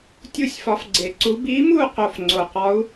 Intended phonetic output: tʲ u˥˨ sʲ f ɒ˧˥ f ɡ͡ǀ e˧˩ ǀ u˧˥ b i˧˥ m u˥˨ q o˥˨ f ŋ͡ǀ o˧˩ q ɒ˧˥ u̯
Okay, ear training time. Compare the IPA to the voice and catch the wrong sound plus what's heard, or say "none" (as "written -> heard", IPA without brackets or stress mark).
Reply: none